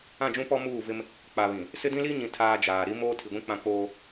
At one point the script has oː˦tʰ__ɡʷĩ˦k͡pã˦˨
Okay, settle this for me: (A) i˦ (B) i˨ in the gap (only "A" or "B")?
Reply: B